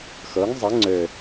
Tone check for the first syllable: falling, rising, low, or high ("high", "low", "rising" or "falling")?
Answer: rising